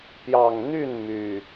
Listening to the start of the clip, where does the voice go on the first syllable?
low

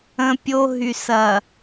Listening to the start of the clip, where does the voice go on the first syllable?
high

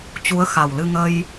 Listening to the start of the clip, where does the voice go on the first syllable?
rising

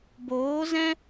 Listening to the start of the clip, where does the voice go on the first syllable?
rising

